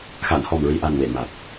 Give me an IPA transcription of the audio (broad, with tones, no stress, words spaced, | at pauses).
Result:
xa˨˩˨nhɔ˨˩mɹi˨˩ʔa˨˩n we˨˩˨ma˨˩t̚